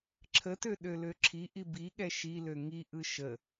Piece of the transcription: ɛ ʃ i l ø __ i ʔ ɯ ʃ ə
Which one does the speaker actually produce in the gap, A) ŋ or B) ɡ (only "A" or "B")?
A